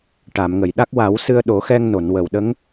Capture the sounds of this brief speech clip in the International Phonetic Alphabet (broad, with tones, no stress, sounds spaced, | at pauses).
ʈ a˨˩˨ m ŋ ə˨˩˨ j ɗ a˦˥ k̚ w a˨˩˦ w s ɨ˧ ə̯ ɗ o˨˩˦ x ɛ˧ ŋ n o˨˩˨ n w ə˨˩˨ w ɗ ə˧˥ ŋ